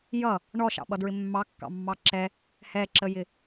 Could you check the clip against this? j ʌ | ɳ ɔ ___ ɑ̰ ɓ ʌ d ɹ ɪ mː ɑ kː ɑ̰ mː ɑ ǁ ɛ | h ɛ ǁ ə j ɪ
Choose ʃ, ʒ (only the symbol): ʃ